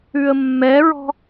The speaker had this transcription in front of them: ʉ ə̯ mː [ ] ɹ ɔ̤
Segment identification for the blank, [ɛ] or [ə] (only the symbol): ɛ